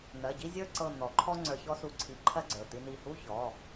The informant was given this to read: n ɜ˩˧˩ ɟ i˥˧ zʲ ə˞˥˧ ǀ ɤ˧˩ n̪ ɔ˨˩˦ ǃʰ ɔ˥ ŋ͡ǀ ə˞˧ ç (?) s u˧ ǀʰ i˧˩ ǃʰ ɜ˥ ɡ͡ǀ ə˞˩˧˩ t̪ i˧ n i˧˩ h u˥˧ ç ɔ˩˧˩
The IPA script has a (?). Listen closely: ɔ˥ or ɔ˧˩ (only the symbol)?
ɔ˥